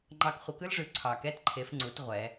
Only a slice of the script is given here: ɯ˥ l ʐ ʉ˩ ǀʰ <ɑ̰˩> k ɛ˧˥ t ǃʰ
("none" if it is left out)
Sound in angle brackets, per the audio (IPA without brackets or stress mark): ɑ˩